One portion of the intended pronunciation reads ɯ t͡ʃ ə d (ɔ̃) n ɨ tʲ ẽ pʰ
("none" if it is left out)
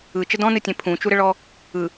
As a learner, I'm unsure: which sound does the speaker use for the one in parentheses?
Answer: ɔ̃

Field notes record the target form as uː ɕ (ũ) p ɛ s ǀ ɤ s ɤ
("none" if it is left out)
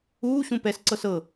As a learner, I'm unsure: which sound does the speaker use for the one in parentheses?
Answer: ũ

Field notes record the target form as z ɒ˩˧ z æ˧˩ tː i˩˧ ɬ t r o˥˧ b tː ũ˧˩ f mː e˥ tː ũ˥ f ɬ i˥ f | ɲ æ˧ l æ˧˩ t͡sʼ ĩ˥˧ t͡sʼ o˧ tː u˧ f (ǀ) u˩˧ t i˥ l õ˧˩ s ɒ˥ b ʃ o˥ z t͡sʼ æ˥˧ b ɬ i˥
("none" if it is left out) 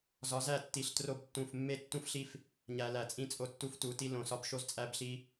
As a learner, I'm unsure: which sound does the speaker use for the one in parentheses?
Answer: t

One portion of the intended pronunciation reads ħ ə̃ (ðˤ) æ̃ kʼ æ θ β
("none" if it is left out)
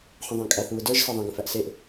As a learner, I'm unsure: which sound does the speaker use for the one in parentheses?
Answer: ðˤ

